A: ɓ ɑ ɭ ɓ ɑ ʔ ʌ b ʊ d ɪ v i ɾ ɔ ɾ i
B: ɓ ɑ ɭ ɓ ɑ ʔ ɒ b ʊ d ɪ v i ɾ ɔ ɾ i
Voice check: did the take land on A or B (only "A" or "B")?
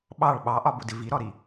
B